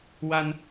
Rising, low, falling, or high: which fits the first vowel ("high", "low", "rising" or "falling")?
high